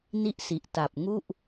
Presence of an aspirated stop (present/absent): absent